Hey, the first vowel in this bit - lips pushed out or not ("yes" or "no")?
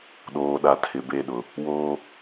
yes